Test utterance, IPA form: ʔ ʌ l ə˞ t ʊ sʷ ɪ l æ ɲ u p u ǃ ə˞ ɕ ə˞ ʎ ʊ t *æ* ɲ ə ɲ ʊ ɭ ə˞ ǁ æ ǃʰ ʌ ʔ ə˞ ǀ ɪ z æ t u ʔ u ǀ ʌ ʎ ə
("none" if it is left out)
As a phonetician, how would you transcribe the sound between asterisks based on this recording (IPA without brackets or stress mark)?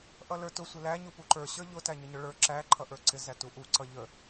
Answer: æ